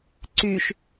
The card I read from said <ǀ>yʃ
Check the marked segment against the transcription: correct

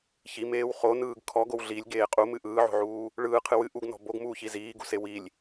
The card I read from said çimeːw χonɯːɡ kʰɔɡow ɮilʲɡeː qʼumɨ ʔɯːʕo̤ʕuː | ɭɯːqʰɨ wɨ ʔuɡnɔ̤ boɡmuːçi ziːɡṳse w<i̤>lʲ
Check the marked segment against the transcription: incorrect: i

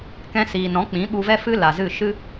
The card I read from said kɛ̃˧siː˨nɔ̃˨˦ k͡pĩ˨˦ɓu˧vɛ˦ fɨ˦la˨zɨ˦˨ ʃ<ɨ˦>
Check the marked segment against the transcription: correct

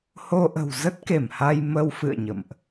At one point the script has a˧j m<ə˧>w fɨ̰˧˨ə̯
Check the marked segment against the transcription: correct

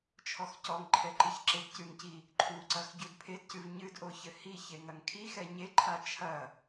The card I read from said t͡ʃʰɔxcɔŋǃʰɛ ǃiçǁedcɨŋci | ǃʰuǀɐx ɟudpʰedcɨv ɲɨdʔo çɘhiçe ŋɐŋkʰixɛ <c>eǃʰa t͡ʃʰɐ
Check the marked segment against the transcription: incorrect: ɲ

